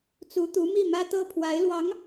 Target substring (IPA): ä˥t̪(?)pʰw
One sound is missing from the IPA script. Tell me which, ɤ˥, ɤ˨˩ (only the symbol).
ɤ˥